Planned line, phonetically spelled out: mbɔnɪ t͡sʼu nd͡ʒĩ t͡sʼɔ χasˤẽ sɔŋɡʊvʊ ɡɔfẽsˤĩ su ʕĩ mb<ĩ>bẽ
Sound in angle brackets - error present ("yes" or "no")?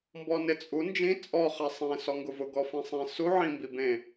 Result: yes